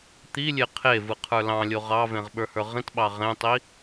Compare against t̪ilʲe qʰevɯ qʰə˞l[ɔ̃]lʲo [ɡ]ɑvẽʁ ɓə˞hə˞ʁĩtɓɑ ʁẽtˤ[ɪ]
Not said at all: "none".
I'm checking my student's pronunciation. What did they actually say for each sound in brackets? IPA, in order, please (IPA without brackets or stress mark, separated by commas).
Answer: ɑ̃, ʁ, i